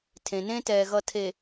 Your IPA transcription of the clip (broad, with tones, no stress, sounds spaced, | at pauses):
tʰ ẽ˨ n ẽ˦ t ɛː˨ ɣ ʌ˨ tʰ e˨